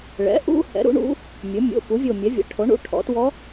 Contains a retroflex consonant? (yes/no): yes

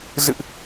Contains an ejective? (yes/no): no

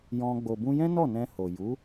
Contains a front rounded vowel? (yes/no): no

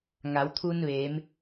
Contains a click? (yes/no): no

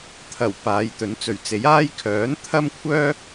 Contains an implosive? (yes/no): no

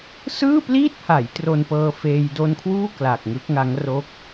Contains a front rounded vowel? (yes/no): no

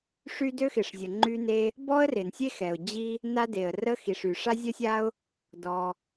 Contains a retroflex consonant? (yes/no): yes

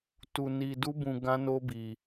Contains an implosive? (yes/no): no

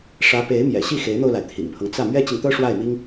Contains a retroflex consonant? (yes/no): yes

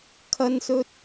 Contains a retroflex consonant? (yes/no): no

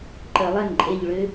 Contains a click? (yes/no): yes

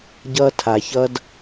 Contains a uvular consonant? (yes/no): no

